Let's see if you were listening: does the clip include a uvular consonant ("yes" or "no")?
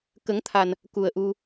no